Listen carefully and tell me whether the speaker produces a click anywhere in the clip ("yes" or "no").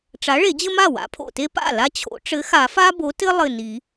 no